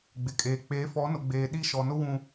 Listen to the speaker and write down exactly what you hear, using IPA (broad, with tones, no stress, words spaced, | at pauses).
ɡ͡bɪ˨kʼeː˨ k͡peː˨˦fɔ˨˦nʊ˨ɡ͡beː˨ ɗi˦ ʃɔ˨nʊ˦ wũ˦